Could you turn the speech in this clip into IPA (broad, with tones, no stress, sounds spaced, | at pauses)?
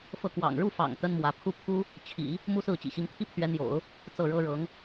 f ɤ˥˩ k w ɑ̰˨˩ ŋ ɻ u˥˩ f ɑ̰˨˩ ŋ t̪ ə˥ n m w ä˧˥ pʰ u˥˩ pʰ u˥ | t͡ɕʰ ḭ˨˩˦ | m u˥ s ɹ̩˥˩ t͡ɕ ḭ˨˩ ɕ i˧˥ ŋ t̪ʰ i˥ pʰ ɥ ɛ˧˥ n̪ j o̰˨˩˦ ʊ̯ | t͡s ɤ˥˩ ɻ ɤ˥ ɻ ɤ˧˥ ŋ